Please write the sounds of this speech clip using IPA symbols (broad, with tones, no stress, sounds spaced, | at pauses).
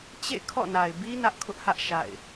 t͡ɕ ḛ˦˨ kʰ ɔ̰˦˨ n a˨ ɪ̯ b i˦ n ä˦ ʔ kʰ ʊ˦ ʔ h ä˦ ʔ ʃ a̰˦˨ ɪ̯